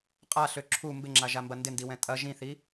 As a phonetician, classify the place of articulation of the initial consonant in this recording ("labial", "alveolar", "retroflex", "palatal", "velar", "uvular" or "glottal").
uvular